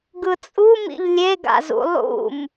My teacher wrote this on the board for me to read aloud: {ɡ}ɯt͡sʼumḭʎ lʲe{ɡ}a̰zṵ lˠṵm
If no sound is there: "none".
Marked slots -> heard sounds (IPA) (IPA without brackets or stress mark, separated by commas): ɡ, ɡ